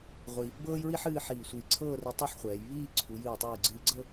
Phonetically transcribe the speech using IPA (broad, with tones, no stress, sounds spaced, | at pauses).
ʁʷ i˧ | b ɤː˥ j ɹ i˥ ħ ɨː˥˧ ħ iː˧˩ sʷ ɨ˧˩ j ǀʰ ɤː˥˧ r i˧ tˤ ɛ˥˧ ħ χʷ ɛː˩˧ j β iː˥˧ ǀʰ u˩˧ j ɨ˧˩ w tˤ ɨː˧˩ ɡ͡ǀ ɨː˧ ɡ͡ǀ ɤ˥˧